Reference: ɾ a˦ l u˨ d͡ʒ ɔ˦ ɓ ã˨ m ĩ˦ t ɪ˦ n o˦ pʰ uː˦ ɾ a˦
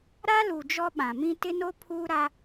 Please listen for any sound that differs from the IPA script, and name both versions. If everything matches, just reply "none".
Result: none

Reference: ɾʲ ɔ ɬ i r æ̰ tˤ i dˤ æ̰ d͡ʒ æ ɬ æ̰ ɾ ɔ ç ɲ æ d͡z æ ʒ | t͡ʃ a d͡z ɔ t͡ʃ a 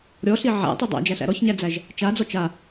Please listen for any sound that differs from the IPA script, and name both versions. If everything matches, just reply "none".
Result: r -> ʕ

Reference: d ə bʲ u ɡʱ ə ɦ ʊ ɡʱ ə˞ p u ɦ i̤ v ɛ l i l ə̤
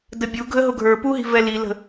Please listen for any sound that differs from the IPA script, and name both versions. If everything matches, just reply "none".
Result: none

